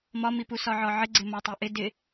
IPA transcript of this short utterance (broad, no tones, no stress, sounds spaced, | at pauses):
m ɒ m i p u s ɒ ʕ ɒ ʕ ɪ ɡ͡ǀ ɪ m ɒ tˤ ɪ ʔ ɪ d ɪ